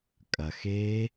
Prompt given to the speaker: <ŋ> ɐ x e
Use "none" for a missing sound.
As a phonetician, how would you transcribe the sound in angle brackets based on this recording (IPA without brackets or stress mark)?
kʼ